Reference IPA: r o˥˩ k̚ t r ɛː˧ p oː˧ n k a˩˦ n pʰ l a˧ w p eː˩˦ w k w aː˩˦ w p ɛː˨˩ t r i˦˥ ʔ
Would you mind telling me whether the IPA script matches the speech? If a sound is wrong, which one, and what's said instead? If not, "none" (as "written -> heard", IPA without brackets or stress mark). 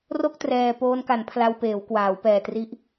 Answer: none